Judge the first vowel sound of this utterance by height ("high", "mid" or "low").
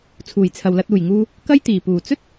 high